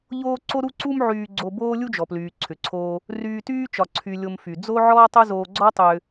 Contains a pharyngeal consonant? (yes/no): yes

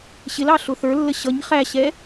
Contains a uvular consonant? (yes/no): yes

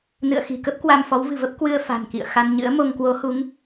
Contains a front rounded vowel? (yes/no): no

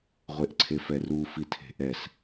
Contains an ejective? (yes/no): no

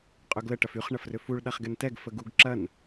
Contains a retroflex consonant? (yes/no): yes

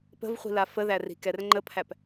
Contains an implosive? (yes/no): no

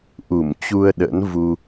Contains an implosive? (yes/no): yes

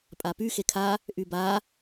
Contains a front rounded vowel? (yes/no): yes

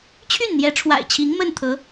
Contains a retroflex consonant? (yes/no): yes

